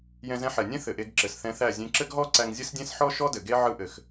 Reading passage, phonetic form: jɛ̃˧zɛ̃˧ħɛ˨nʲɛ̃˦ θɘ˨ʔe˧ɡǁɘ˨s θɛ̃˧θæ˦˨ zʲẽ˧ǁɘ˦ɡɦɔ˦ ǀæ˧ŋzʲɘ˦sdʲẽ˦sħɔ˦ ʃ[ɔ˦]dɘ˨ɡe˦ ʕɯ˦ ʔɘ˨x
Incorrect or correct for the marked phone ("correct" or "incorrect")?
correct